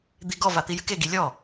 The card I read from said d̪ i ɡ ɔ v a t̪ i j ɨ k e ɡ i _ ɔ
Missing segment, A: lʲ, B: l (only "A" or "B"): A